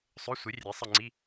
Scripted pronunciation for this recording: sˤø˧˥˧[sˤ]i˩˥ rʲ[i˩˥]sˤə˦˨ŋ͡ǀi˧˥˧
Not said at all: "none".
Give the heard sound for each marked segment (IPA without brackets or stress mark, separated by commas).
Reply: sʷ, e˩˥